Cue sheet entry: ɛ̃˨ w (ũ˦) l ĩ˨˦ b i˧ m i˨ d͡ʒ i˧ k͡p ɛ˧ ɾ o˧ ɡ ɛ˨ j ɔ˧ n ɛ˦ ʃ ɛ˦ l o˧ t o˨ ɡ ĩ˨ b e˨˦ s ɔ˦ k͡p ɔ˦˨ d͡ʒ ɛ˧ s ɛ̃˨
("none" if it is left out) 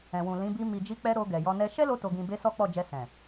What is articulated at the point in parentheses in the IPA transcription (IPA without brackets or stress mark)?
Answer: ũ˨